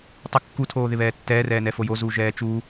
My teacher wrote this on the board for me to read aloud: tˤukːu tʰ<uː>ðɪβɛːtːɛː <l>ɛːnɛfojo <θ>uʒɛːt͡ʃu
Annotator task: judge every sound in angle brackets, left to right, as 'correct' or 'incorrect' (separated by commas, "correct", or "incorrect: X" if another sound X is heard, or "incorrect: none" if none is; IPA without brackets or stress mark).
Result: incorrect: oː, incorrect: r, incorrect: z